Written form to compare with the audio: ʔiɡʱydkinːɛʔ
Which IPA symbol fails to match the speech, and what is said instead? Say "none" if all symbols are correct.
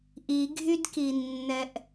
none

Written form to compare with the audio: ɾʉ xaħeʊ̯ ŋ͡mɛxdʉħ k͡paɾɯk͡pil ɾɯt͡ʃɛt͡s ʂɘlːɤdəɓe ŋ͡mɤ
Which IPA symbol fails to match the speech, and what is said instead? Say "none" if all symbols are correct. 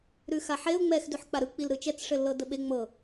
none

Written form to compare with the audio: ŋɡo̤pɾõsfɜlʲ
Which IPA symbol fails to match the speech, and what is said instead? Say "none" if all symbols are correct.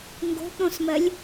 f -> m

